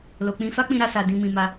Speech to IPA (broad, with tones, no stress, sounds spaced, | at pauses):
l o˨ k͡p ĩ˧ f a˦ k͡p ĩ˧ ɾ a˧ s a˨ d ĩ˧ m ĩ˧ m a˧